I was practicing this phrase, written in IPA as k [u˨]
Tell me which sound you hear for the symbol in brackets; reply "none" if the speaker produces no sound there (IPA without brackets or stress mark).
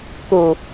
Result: u˨